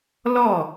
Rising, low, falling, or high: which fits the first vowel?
falling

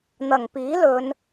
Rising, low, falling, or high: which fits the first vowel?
low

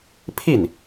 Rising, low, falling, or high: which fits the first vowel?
falling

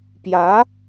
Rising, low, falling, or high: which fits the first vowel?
rising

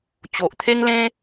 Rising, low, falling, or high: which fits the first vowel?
low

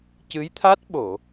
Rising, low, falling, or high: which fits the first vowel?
rising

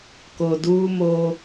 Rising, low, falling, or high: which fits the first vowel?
low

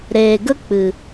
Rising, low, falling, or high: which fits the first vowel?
low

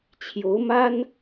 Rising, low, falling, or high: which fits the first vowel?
rising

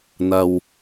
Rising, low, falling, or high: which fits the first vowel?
low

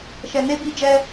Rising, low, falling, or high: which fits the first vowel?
low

